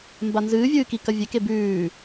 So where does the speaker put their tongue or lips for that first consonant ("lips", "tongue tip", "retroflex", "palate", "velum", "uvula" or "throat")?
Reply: lips